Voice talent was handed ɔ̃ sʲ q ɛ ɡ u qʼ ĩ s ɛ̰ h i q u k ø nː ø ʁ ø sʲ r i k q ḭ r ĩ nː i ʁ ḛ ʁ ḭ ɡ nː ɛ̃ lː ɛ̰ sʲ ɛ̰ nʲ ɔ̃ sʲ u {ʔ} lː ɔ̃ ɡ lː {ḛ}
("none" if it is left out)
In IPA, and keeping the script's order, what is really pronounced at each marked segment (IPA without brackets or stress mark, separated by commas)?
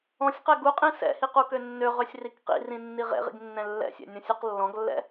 q, ɛ̰